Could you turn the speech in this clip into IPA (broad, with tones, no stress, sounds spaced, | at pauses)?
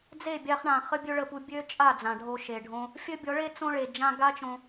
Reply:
d͡z e˦˨ bʲ a˧ χ ɳ ã˨ χ ə˦ bʲ ø˦ ɭ ə˧ p u˧ bʲ ø˦ t͡ʃʼ a˦˨ d͡z ã˨ ɖʱ o˧ ʃ e˨ ɖʱ õ˦ | fʲ ə˦ bʲ ɔ˨˦ ɭ e˦ t͡s õ˦ ɭ e˨ d͡ʒ ã˧ ɡ a˦ t͡ʃ õ˧